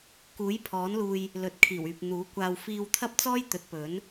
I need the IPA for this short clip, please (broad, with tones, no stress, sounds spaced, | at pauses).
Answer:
k uː˨˥ j pʰ ɔː˨˥ n l uː˧ j | l ɵ˨˥ t̚ kʰ iː˨˩ w yː˨ p̚ n̪ uː˨˥ kʷ aː˧ w f iː˧ w t̪ʰ ɐ˥ p̚ t͡s ɔː˥ j t̪ ɵ˨˥ t̚ p ɵ˨˥ n